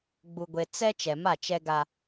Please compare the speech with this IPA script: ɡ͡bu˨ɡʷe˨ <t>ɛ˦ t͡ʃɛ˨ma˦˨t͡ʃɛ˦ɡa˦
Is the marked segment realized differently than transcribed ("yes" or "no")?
yes